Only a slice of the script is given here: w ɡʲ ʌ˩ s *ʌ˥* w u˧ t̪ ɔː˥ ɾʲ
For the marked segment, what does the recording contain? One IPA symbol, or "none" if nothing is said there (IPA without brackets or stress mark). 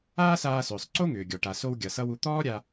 ʌ˥